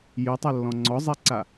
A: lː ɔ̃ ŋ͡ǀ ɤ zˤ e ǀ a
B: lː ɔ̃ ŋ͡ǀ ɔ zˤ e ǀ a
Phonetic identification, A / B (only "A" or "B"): B